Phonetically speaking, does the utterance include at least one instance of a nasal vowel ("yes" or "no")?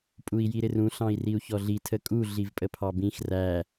yes